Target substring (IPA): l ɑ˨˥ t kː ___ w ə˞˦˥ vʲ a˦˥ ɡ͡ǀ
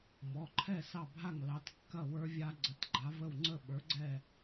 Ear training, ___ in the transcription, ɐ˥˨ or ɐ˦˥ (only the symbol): ɐ˥˨